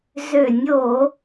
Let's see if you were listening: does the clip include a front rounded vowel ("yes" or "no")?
yes